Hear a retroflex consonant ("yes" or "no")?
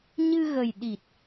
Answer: no